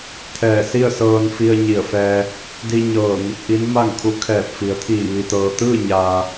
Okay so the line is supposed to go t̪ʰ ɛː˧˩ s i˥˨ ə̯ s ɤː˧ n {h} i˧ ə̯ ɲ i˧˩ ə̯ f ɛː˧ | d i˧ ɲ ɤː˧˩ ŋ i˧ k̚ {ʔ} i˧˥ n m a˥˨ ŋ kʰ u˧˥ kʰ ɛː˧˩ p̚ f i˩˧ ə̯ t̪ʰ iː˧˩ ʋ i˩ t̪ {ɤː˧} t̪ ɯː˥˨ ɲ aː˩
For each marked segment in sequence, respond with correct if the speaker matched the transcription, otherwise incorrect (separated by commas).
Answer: incorrect, correct, incorrect